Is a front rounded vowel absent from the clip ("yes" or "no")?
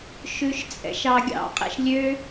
no